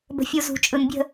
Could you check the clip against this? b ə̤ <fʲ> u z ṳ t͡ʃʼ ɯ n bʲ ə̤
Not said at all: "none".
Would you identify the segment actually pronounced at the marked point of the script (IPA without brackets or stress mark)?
fʲ